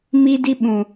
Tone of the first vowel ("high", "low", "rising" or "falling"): high